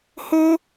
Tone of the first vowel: high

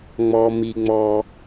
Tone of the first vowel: low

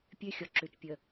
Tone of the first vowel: high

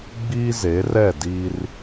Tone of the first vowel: high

